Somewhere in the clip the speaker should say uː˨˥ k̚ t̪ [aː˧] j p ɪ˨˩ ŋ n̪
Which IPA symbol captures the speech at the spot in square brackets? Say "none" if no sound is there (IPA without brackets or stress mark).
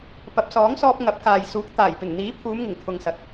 aː˨˩